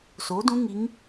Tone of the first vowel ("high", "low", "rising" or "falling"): rising